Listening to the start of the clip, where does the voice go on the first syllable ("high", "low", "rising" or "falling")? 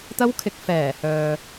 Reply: high